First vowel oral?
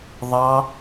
yes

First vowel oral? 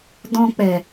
no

